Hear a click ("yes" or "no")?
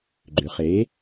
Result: yes